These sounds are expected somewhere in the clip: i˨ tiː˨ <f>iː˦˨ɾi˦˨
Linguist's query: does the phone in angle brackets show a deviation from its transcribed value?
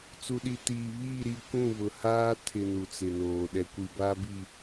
yes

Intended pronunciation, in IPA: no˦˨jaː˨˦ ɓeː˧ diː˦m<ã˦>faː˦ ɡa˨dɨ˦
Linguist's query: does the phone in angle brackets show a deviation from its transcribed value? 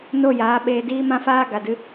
no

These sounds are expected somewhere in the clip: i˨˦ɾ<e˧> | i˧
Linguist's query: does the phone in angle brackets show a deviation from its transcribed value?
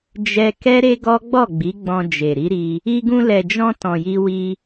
yes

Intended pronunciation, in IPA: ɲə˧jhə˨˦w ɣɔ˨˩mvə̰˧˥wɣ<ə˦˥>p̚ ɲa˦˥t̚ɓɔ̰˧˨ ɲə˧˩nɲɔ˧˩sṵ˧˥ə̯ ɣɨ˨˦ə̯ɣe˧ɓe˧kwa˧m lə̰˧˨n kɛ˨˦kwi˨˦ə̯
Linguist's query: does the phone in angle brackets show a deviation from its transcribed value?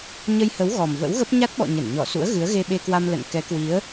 no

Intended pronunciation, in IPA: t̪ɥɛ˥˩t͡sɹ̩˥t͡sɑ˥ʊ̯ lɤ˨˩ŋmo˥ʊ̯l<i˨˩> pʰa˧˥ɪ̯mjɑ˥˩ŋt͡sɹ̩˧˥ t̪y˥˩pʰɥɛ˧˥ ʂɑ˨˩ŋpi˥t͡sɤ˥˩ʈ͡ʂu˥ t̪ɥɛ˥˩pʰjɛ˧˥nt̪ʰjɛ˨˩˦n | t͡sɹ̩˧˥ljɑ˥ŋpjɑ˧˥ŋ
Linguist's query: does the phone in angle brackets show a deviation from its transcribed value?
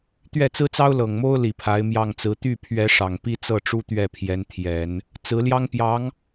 no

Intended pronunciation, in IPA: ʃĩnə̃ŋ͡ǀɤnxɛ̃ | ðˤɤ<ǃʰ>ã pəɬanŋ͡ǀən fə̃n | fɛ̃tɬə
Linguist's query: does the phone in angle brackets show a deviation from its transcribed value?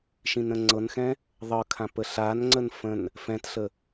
yes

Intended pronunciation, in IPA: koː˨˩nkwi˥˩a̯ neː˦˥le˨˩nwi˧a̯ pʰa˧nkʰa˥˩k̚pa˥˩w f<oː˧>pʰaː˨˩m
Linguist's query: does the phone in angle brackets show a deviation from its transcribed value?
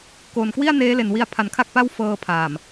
yes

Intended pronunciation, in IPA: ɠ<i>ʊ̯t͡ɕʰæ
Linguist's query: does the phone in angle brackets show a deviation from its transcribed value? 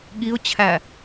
no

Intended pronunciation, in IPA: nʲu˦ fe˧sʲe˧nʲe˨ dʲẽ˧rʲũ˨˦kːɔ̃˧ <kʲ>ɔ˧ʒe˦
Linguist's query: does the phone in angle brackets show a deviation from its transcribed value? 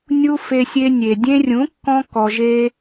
yes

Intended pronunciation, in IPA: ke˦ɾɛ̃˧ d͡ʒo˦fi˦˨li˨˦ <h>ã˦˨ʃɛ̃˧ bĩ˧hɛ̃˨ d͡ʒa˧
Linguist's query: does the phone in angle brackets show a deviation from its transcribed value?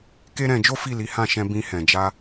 no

